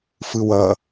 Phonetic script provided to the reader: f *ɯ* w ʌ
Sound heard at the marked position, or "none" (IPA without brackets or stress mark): ɯ